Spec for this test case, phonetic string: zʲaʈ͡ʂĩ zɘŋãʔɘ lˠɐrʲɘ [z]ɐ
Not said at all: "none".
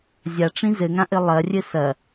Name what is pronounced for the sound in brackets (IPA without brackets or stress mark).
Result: s